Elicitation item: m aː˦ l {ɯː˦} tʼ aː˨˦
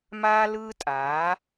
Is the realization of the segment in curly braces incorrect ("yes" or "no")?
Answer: no